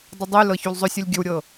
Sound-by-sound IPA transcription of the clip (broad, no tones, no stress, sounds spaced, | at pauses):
dˤ ə dˤ y l ɤ ç u l zˤ ɵ sʲ ɐ lʲ ɡʲ ɵ w ɾʲ ɤ